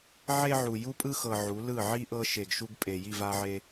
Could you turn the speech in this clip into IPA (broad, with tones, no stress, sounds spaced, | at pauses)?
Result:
ʕ e˦ ʕ u˨ j u˦ pʼ ɯ˦ x ɤ˨ ʕ u˨˦ l ɯ˦˨ ʕ i˦ ʔ ɤ˦ ʃ e˨ ɡ ʃ u˦ ɡ pʼ e˨ j i˦˨ v a˦ ʕ e˦